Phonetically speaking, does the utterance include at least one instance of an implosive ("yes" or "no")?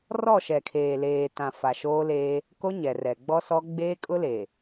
no